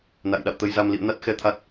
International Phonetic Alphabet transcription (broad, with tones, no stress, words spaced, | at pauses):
na̰˧˨jɗa̰˧˨wt̪ə˧jza˧m lḭ˧˨ə̯na˦˥t̚xɛ˨˦ t̪ʰa˦˥t̚